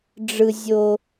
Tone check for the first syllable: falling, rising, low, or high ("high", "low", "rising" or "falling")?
high